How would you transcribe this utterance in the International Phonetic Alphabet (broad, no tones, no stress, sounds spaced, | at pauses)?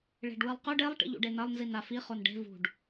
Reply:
ɭ e̤ ɖ w ɨ lˠ q ɵ ɖ e lˠ ʈ ḭ ʎ ṵ ɖ e n ɐ lˠ n z i n a f i χ o n ɖ e̤ v ṳ ɖ